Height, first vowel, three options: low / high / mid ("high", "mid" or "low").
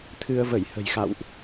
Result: high